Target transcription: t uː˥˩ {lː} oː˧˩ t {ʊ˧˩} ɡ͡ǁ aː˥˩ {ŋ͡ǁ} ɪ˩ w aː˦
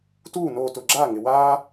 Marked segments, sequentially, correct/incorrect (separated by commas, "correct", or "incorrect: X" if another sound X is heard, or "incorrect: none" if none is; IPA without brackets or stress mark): incorrect: n, correct, incorrect: ŋ